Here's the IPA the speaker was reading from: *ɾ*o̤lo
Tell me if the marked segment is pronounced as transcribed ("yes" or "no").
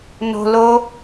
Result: no